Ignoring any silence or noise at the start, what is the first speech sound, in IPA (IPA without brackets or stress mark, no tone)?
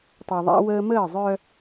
tˤ